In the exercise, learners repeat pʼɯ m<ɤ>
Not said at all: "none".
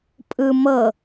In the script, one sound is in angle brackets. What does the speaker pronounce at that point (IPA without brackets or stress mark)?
ɤ